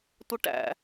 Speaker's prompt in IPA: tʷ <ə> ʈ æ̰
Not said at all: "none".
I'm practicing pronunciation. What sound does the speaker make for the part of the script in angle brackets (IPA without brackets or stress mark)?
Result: ə